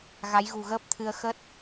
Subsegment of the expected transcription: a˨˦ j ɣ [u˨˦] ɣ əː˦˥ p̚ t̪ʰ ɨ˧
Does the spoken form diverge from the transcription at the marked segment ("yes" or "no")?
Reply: yes